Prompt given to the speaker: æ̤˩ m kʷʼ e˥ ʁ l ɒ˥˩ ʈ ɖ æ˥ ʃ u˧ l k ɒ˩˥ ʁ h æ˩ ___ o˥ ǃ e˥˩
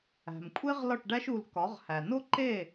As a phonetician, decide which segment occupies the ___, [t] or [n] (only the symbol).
n